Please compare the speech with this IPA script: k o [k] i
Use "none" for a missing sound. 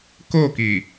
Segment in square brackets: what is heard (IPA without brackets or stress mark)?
k